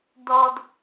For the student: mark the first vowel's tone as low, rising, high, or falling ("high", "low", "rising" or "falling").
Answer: low